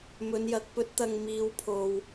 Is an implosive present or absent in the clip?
absent